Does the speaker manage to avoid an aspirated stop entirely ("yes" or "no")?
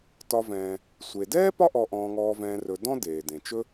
yes